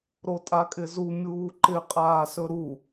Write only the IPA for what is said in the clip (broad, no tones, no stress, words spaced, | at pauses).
ɾotʼakʼɪzu mʲuːǃɪ qʼaːsɵɾu